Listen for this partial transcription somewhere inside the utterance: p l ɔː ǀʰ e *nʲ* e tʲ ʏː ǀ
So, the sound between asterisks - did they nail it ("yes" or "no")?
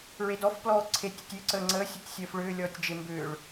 no